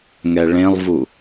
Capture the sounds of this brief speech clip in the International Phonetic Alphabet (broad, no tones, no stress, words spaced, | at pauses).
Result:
ŋɛɭẽlˠvu